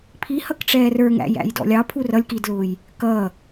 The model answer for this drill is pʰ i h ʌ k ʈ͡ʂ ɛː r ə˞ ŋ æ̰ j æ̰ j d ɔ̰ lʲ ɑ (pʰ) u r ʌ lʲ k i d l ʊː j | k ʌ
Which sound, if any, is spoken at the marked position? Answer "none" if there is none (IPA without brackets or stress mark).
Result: pʰ